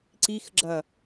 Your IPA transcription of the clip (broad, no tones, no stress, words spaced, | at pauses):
ǀixɡ͡ǁɐ